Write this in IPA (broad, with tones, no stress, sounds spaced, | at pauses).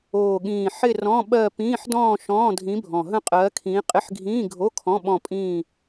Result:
oː˨˩ ɠ ĩː˨˩ ħ ɪ˥˧ r ɔ̃˧˥˧ ɓ ɜ˥˧ p ĩː˧˥˧ ħ d ɔ̃ː˥˧ ʃ ɔ̃ː˧˥˧ dʱ ĩ˧˥ bʱ ɔ̃˨˩ ɦ ə̃˥˧ qʼ ɜː˧˥ kʰ ĩː˧˥ qʼ ɪ˧˥˧ ħ ɡʱ ĩː˧˥˧ ɡʱ o˧˥˧ kʰ ɔ̃˧˥˧ ɓ ɔ̃˥˧ pʼ ĩː˥˧